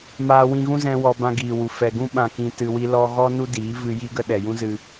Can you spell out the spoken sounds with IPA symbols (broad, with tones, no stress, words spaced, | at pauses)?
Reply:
maː˧wĩ˧ɣũ˦zɛ̃˧ wɔ˧ bã˧ɡiː˨wu˨ fɛ˨ɡũ˦ ɓã˧kĩ˧tɨ˧ wi˧lɔ˧ɣɔ˦ nu˦diː˨˦ vɨ˧ji˦ɡə˦ɗɛ˨ jũ˦zɨ˧